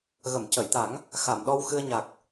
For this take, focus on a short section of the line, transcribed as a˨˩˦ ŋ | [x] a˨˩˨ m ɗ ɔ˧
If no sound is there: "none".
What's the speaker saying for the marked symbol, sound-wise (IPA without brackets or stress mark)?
x